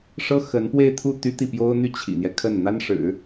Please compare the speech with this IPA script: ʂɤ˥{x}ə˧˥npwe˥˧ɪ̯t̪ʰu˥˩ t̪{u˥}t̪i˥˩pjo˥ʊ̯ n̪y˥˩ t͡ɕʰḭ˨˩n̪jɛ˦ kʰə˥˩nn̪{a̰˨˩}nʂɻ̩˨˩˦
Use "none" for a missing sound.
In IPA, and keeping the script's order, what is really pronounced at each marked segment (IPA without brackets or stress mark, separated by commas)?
x, y˥, a˥